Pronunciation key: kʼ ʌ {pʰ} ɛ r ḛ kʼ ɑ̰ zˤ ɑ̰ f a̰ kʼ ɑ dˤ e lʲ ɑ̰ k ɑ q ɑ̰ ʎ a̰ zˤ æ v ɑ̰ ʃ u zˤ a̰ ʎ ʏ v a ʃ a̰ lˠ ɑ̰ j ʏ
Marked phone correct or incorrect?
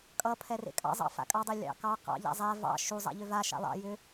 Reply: correct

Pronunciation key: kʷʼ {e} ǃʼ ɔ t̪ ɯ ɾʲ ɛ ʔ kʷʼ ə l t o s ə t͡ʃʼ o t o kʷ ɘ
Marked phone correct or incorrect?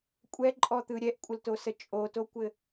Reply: incorrect: ɛ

